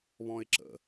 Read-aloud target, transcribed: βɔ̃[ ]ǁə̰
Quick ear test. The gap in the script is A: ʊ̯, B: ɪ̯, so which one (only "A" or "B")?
B